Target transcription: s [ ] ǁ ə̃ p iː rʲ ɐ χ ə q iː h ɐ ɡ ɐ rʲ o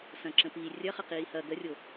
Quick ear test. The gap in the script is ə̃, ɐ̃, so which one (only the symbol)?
ɐ̃